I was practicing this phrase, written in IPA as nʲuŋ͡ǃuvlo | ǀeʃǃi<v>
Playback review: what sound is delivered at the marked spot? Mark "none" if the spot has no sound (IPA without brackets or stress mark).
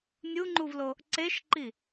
none